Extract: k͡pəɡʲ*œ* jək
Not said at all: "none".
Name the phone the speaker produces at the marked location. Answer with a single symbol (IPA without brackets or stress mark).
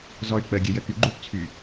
ə